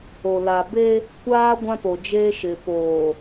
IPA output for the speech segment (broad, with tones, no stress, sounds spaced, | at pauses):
o˨ l a˨ b e˦ | kʷ aː˦ ɡʷ ã˦ p o˨ d͡ʒ eː˦ ʃ ɪ˨ p oː˨